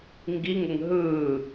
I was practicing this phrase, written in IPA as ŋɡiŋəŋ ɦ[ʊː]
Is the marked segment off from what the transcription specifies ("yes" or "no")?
yes